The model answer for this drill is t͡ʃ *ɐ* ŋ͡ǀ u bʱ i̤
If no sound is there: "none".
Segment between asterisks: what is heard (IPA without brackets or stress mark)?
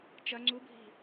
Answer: ɐ